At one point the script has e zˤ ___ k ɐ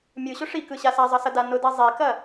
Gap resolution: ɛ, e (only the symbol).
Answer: e